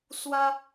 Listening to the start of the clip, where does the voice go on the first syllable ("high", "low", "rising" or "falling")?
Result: high